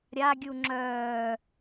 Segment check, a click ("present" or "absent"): present